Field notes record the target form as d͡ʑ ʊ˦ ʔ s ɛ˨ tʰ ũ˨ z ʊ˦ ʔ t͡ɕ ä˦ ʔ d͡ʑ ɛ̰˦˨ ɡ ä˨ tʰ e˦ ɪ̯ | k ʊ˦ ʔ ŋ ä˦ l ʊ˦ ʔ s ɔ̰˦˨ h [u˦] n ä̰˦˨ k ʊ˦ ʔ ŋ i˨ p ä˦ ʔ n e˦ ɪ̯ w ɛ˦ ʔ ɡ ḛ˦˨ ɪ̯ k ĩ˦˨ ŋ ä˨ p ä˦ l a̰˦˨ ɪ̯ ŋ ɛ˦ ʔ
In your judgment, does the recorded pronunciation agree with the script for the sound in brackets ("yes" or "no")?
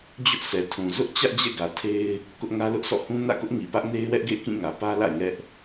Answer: no